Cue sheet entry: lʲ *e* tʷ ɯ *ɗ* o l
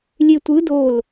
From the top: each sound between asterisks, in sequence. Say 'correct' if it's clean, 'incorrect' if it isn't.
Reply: correct, incorrect

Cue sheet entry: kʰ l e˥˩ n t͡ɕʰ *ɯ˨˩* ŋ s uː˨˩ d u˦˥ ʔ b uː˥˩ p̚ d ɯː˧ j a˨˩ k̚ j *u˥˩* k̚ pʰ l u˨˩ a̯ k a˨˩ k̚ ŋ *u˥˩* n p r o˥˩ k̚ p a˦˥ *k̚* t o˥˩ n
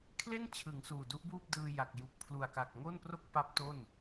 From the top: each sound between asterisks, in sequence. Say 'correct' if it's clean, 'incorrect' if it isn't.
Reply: incorrect, incorrect, incorrect, incorrect

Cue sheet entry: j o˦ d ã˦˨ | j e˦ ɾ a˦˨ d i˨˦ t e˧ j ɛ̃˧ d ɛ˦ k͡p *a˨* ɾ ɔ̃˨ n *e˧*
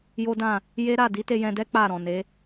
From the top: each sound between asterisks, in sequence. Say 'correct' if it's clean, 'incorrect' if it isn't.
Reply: incorrect, incorrect

